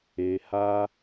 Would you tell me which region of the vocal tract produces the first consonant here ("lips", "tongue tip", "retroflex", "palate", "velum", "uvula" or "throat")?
throat